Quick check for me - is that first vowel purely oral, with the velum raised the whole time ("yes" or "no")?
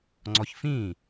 yes